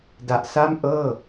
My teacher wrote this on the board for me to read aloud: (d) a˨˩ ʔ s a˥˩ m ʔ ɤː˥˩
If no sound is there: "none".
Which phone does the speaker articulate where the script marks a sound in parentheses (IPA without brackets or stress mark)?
d